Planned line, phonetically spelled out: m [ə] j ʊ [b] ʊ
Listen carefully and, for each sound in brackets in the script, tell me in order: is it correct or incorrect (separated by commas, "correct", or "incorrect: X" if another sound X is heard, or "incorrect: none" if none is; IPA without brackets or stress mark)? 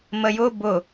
correct, correct